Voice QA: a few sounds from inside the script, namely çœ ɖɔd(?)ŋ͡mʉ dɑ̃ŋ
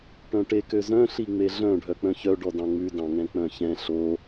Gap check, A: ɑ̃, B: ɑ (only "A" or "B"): A